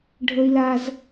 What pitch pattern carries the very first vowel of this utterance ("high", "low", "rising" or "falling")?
high